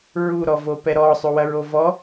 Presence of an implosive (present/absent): absent